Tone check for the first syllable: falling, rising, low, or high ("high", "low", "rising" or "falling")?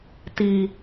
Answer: high